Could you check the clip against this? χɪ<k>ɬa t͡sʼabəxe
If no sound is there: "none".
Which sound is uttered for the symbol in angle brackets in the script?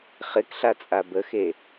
k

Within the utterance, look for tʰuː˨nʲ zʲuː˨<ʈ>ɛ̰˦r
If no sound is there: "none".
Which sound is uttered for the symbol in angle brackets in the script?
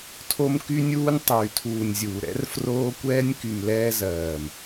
ɾ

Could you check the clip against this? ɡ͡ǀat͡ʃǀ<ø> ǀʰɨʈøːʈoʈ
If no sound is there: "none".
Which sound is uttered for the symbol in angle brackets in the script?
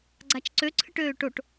ø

